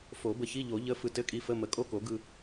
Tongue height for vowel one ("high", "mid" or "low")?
mid